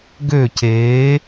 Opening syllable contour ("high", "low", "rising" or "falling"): falling